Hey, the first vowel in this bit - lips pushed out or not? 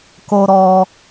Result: yes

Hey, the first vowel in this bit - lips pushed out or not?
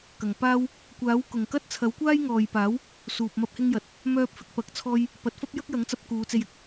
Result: no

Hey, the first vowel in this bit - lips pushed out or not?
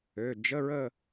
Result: yes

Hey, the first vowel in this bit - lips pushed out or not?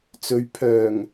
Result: yes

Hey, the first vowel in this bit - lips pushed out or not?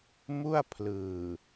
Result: yes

